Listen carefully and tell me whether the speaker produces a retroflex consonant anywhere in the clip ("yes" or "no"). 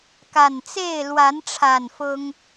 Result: yes